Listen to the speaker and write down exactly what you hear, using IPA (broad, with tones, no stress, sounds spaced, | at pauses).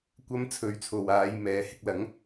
kʷ ɐ˥ m t͡sʰ ɵ˧ ɥ t͡sʰ o˨ w aː˨˧ j m ɛː˨˥ h ɪ˧ k̚ l ɐ˨˥ ŋ